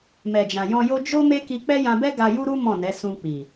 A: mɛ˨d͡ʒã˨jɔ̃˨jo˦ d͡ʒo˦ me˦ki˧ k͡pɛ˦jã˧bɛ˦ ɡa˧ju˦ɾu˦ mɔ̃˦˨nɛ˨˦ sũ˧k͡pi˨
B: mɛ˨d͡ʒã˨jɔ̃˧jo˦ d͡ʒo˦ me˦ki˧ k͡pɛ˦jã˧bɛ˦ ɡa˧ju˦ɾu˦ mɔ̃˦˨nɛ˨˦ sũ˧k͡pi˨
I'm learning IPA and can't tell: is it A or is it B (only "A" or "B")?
B